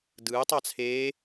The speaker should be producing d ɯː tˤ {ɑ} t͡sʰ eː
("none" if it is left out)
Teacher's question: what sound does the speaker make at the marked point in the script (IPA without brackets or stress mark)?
ɑ